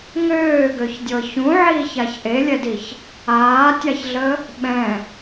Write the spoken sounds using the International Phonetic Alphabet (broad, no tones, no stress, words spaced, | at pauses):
ŋøːɡøçdʲɤ çũʕiːçaç ʔelʲɛdiç | aːtʲaçɮə | ɓɛ̃